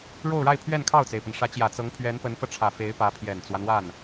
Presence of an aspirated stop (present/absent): present